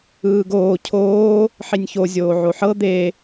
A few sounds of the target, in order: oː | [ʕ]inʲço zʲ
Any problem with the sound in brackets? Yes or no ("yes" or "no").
yes